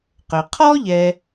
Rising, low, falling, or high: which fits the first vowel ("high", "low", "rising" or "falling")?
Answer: low